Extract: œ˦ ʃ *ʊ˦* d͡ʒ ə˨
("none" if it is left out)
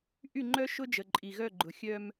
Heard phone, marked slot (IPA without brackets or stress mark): ʊ˦